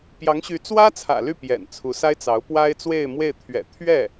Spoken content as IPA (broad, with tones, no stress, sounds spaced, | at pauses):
p j ɑ˧˥ ŋ ɕ y˧˥ t͡s w ä˥ t͡sʰ ä̰˨˩ l y˥˩ p j ɛ̰˨˩ n t͡sʰ u˧˥ s a˥ ɪ̯ t͡s ɑ˧˥ ʊ̯ p w a˥ ɪ̯ t͡s w e˥˧ ɪ̯ m w e˥˩ ɪ̯ t̪ʰ ɥ ɛ̰˨˩ t̪ʰ ɥ ɛ˥˩